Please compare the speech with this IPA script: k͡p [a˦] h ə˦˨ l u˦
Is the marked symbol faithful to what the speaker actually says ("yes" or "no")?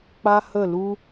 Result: yes